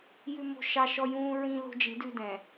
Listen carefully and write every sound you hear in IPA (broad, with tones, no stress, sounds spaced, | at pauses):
j ʉ˦ m o̤˦ ʃ ɑ˦ ʃ ɔ˦ j ũː˦ ɹ ĩ˦ l o̤˦ d͡ʒ i˨˦ d ʉ˦ d ɛ̃˨